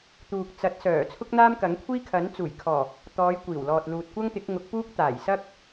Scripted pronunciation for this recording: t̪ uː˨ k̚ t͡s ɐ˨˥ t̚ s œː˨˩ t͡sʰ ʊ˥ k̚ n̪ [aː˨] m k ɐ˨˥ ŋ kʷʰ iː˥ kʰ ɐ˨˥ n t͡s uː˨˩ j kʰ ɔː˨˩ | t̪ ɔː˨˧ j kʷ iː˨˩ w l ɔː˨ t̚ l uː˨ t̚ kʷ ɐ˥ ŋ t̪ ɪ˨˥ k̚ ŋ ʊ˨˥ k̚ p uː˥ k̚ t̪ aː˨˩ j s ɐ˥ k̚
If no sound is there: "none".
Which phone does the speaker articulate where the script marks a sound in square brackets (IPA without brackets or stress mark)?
aː˥